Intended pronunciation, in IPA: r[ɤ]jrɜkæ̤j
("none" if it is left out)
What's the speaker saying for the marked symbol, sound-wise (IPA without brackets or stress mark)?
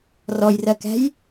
ɔ